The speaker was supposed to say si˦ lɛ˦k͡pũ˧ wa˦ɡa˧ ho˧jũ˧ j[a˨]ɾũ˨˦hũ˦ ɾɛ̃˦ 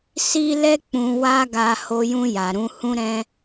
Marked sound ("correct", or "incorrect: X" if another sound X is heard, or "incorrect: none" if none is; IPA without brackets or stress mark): correct